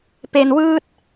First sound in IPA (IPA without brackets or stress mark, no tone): p